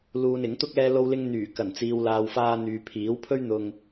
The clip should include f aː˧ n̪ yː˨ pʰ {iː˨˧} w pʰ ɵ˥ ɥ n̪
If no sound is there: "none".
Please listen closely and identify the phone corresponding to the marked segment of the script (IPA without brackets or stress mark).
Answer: iː˨˥